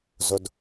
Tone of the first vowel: low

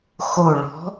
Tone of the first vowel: low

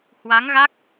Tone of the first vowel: rising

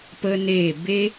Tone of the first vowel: high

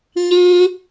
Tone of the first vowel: high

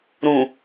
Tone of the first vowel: low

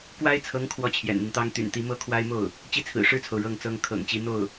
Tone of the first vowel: high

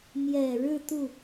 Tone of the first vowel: low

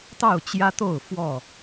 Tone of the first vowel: falling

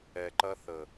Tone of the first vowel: low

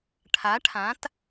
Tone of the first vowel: rising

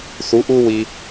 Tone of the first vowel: rising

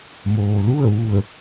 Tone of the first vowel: low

